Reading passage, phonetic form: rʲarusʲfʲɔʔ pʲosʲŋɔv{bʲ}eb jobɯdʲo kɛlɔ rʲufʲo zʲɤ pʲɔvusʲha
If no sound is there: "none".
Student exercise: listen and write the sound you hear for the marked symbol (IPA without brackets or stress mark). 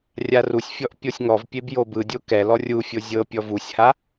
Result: pʲ